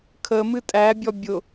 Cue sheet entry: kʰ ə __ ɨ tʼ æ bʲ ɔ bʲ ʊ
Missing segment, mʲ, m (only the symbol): m